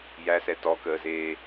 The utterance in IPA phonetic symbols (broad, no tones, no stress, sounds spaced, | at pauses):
j æ s ɛ t ɔ k əː z eː